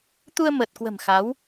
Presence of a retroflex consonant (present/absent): absent